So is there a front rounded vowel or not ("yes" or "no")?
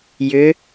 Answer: yes